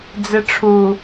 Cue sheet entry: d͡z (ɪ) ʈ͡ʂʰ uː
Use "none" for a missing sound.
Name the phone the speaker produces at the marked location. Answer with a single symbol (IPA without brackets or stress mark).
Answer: ɪ